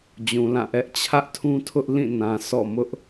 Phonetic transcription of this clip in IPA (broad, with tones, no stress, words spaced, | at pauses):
d͡ʑũ˨lã˦˨ʔɛ˦ʔ t͡ɕʰä˦ʔtʰũ˦tʰʊ˦ʔ lĩ˦˨ nã˨sʰɔ̰˦˨ mʊ˦ʔ